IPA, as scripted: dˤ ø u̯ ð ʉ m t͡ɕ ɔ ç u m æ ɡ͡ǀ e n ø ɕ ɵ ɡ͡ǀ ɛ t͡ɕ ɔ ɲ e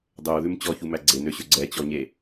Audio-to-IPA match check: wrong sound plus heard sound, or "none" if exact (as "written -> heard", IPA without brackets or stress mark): none